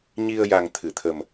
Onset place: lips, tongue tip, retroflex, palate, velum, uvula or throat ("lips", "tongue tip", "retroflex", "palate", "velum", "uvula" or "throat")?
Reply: palate